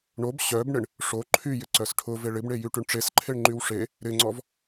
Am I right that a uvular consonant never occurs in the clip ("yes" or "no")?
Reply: yes